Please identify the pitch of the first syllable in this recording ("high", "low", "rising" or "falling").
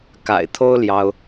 low